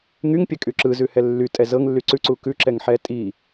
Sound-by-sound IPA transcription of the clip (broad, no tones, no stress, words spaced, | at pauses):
ŋyŋpʲɛkʼy ǁɯzʉhɛ lːytʼɛ zɤŋlːy ǀʉǀu kʉǁɛŋħɛ tʼi